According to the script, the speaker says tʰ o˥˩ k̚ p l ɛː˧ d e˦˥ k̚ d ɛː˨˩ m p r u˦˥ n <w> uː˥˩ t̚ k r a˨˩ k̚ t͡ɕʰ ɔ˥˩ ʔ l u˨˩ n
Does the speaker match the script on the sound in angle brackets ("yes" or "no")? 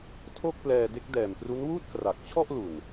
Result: yes